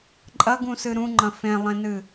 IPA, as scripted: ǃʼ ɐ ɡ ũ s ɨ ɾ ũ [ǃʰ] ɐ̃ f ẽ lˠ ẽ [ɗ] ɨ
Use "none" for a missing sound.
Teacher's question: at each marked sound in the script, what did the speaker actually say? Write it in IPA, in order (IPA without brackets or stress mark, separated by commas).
ŋ͡ǃ, n